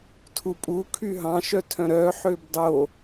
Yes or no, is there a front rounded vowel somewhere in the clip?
yes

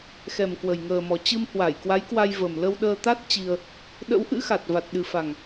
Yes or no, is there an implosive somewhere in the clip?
yes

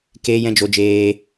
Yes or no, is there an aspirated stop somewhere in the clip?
no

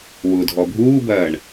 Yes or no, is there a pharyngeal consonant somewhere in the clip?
no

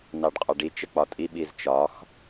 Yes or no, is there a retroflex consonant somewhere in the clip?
yes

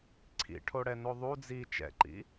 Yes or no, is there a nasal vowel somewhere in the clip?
no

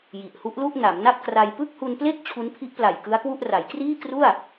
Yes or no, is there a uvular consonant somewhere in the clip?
no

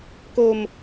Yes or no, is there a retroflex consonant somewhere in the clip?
no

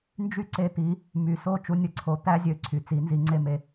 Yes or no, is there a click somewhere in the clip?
yes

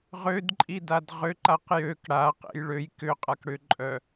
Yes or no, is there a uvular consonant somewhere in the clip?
yes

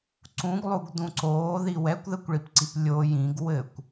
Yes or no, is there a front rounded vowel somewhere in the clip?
no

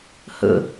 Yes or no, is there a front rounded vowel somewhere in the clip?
no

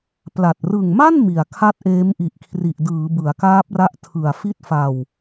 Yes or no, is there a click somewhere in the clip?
no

